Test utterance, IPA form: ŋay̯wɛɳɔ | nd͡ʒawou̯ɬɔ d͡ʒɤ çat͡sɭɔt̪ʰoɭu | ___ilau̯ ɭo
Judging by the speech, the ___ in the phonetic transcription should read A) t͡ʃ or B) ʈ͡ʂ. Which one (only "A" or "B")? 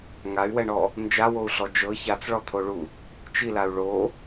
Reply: A